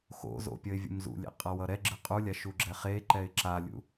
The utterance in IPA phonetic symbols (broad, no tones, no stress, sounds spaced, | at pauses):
x o̰ z o̰ pʲ ʌ ɪ̯ vʲ ṵ m z ṵ lʲ ḛ qʼ ʌ w ʌ ɾ ɛ ɡ͡ǁ ɯ qʼ u lʲ a ʃ u ɡ͡ǁ ɛ χ e ǃ ɛ ɪ̯ ǁ a lʲ ṵ